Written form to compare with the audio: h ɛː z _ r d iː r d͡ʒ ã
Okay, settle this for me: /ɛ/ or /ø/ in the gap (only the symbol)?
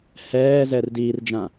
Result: ɛ